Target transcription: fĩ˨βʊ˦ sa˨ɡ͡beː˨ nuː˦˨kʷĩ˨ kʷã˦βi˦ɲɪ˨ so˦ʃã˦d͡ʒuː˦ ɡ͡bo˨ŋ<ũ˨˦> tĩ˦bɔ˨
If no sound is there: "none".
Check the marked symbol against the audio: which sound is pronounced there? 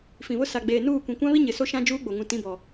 ũ˨˦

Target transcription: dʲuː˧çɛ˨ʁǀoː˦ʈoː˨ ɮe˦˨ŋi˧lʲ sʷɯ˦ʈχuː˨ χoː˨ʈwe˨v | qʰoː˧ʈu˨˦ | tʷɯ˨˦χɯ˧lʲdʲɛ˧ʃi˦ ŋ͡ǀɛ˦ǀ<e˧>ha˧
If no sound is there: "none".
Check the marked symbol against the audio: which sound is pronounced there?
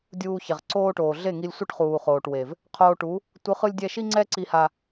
i˧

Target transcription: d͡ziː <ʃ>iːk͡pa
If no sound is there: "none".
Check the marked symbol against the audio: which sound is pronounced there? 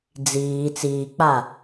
t͡s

